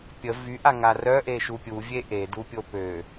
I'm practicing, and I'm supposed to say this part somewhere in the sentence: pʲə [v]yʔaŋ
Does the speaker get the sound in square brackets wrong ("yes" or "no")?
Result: no